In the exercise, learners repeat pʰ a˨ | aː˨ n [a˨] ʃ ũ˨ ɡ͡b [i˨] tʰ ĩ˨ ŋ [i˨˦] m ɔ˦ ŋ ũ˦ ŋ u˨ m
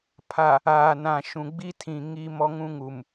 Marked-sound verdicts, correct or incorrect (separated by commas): incorrect, incorrect, incorrect